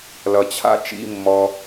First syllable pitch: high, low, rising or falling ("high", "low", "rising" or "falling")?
low